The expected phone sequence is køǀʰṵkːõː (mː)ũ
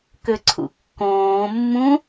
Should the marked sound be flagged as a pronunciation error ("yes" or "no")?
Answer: no